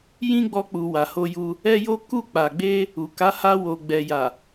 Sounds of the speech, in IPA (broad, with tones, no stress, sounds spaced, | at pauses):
j ĩ˦ ɡ͡b ɔ˧ k͡p u˨ w a˨ h o˧ j u˧ | ɛ˦ j o˦ k u˦˨ k͡p a˨ ɡ͡b e˧ | u˨ k a˨˦ h a˧ w o˨ ɡ͡b ɛ˨ j a˨